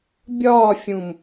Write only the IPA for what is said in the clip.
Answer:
bʲ ɒː fʲ ũ m

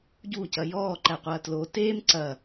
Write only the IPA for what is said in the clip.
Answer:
ɟ u c ɐ j ɔː ǃ æ qʷ ɐː t l o t eː m ǀ ɐ

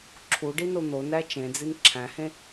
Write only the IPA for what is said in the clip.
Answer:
ǁʰ u ɖ i n o n̪ o n æ t͡ʃ ẽ d͡z i n ǁʰ æ̃ h ẽ

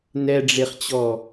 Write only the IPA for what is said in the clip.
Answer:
n ɛ ɖ͡ʐ e χ t͡ɕ ɔ

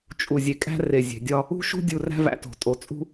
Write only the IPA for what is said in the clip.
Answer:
t͡ʃʼ u˨ zʲ e˨ kʼ æ̤˦ r e˨ zʲ e̤˨ dʲ ɒ˦ | ṳ˦ ʃ ṳ˦ dʲ u˨ r æ̤˦ v æ̰˨ t o̤˨ tʼ o˨ t͡sʼ ṳ˦

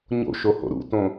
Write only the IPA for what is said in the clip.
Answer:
ɲ o̰ ʃ o h o̰ ɾ ṵ t õ

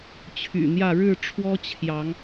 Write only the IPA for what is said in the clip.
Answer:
t͡ɕʰ y̰˨˩ n̪ j ä˥˨ ɻ ɻ̩˥˨ ʈ͡ʂʰ w ɔ˦ t͡ɕʰ j ɑ˨˦ ŋ

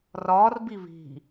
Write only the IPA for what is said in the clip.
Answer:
r ɒː r b i β i̤

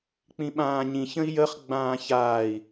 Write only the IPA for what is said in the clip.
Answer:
k͡p ĩ ɓ ãː ɲ ĩ ç ə̃ i̯ j ə χ ɡ͡b ãː ç aː i̯

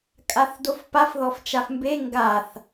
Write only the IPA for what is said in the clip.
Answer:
kʼ a θ d o f p a f ð ɔ f t͡ʃ a f m b e ŋ ɡ a θ

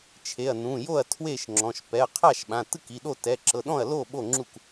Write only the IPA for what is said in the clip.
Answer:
t͡ʃʰ e˩˧˩ ɐ̯ n ũ˩˧˩ j o˥˩ ɐ̯ tʰ w e˥˩ ʃ ŋ͡ǁ ɔ̃˩˧˩ ʃ p ɛ˩˧˩ ɐ̯ qʰ a˥˩ ʃ ɓ ã˩˧˩ t ɯ˥˩ k i˩˧˩ ɗ o˥˩ t ɛ˩˧˩ ǁ ɤ˩˧˩ ɗ ɔ̃˥˩ ɐ̯ l o˥˩ ɓ o˥˩ ŋ͡ǁ u˥˩ k

